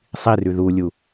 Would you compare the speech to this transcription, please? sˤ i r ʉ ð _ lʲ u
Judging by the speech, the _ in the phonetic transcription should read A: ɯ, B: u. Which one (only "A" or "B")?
B